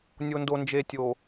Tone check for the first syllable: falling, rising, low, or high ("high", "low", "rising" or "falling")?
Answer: low